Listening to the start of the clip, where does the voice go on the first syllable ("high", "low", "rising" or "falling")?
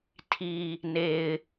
low